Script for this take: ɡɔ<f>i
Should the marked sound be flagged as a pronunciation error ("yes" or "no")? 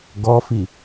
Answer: no